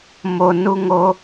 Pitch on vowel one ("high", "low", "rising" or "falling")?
low